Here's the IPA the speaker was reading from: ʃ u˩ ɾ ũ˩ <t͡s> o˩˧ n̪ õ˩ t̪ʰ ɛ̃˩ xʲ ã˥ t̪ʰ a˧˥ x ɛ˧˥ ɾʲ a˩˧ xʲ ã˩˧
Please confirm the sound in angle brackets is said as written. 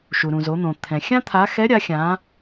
no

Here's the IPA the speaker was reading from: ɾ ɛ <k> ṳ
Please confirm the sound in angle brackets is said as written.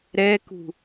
yes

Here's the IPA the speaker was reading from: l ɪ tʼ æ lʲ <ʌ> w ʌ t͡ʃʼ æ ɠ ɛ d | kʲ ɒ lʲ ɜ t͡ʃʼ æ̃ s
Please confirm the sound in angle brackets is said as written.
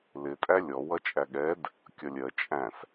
no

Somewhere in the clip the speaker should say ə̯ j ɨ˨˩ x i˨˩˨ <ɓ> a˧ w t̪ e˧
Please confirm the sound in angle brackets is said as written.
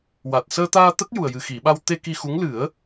yes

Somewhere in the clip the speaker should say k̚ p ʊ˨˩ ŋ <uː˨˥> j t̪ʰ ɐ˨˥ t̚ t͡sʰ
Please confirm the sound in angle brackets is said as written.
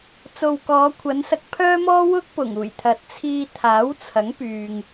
no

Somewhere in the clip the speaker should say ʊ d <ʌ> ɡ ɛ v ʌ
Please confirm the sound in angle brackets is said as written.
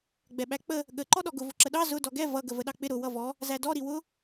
no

